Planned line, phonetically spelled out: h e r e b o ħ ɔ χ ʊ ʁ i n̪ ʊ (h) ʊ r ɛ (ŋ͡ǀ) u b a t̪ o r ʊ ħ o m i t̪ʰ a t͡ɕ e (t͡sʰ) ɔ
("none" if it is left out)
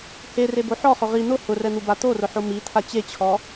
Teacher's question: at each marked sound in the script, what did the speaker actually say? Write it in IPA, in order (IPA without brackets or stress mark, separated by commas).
h, n̪, t͡ɕʰ